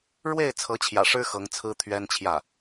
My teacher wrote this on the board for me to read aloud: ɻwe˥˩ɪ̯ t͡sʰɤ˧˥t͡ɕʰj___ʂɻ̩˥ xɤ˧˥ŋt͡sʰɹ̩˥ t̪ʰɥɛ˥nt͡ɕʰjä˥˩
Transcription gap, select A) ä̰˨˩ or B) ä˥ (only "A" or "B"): A